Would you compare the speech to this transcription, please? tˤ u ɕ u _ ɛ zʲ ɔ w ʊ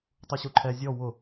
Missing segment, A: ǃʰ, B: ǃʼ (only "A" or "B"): A